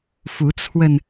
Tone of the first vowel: rising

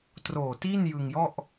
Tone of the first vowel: low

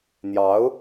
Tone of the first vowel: rising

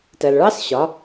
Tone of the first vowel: low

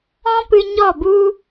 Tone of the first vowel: high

